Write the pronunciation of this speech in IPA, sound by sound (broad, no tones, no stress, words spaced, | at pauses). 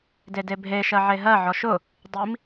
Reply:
dedebʱe ʃɜʕeɦɜ ʕɔʃʊ | dˤim